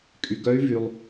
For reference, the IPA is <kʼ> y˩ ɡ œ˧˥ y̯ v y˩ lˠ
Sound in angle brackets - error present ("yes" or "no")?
no